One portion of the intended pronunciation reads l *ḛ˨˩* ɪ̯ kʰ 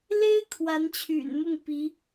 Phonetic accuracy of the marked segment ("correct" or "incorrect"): incorrect